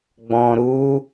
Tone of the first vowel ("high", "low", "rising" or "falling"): low